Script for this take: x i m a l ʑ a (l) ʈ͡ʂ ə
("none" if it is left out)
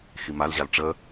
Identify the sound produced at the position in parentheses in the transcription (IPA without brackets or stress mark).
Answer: l